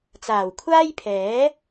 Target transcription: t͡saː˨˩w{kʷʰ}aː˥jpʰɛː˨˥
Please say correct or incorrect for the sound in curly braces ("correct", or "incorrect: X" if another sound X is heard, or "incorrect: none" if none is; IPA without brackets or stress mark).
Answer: correct